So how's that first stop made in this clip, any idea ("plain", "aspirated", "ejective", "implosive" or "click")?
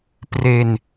plain